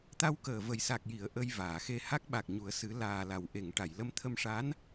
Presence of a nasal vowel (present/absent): absent